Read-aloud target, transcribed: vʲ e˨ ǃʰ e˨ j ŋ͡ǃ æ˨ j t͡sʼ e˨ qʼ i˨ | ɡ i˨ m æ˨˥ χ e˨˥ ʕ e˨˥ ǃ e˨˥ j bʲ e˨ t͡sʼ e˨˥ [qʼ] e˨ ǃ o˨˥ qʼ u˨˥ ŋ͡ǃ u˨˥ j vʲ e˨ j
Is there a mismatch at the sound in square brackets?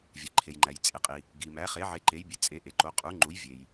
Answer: yes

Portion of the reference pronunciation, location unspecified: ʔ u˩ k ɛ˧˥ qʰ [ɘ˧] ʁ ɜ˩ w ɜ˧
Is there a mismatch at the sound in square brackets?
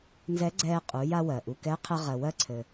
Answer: no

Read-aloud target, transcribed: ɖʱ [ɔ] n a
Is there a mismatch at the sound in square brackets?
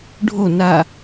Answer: yes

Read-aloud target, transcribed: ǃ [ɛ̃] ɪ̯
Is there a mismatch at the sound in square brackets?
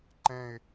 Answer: no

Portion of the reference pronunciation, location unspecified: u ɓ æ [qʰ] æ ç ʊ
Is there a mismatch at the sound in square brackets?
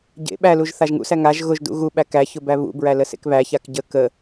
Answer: yes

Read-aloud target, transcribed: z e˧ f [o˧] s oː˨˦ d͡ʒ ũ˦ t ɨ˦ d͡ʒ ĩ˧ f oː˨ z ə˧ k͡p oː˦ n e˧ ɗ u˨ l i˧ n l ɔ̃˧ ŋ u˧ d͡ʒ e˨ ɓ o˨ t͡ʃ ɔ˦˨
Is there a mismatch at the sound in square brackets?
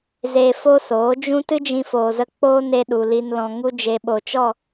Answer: yes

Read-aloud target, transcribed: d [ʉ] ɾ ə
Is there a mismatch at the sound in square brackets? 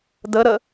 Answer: yes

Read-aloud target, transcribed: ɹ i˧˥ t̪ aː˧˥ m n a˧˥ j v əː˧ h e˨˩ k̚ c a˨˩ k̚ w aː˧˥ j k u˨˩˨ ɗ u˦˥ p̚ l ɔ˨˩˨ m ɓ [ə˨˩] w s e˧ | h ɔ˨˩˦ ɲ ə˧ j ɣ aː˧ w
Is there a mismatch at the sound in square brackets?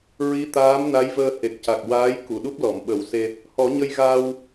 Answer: yes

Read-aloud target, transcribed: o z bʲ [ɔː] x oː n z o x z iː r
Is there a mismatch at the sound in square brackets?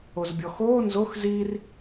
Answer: yes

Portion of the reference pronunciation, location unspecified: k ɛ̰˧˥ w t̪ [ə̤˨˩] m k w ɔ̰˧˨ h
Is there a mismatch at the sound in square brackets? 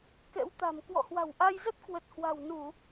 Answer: yes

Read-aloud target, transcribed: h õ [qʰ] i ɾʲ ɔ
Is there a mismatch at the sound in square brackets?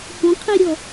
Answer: no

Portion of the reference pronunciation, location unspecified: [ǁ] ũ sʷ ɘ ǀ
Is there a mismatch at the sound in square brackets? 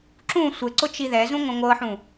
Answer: no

